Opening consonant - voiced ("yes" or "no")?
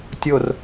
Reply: no